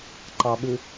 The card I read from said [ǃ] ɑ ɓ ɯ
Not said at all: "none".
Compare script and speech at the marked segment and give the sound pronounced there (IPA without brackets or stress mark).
ǃ